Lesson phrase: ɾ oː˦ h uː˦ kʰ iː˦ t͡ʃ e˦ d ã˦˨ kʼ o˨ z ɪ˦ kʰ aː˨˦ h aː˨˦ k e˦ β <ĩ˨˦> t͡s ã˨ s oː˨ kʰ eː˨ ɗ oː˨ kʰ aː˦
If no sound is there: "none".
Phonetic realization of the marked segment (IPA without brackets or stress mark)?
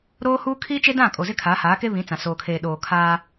ĩ˨˦